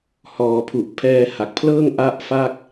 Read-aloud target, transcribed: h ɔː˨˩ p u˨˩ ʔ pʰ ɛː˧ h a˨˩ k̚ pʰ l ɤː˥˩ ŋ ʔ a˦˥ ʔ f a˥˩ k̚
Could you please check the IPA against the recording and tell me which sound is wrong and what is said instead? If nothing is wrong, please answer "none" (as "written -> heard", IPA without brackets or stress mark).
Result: p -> pʰ